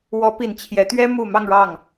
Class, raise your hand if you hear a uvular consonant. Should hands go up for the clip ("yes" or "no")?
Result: no